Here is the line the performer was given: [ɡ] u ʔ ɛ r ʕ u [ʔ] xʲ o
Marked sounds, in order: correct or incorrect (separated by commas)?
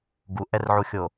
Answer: correct, incorrect